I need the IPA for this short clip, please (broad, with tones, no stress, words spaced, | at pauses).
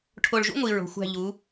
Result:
ʈʰo˧˩ɭʒṵ˥ŋʷi˧˩ɹo̤˩˧ xʷæ̤˧˩ʎu˩˧